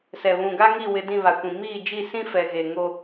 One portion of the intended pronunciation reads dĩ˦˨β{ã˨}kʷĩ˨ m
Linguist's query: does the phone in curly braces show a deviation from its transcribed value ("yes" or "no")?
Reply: yes